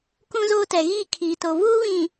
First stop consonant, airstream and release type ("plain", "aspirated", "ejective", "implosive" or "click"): plain